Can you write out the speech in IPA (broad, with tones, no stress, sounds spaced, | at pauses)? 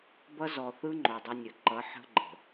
b ʌ˦ z ɔ˨ θ ɯ˦ ŋ͡ǃ o˨ dˤ ə˦ nʲ ɘ˨ ǃ ʌ˨˦ ħ ə̤˦ ɡ͡ǃ ə̤˨